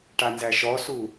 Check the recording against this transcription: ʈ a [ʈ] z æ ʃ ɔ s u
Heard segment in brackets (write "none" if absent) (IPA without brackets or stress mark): n